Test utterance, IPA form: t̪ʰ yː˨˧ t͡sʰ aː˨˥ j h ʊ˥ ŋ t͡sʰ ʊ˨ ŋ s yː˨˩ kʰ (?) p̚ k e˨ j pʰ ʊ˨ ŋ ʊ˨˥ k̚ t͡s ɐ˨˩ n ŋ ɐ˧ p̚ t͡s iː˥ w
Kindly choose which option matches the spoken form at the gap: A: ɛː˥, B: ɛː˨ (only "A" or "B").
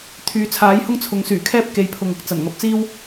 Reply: A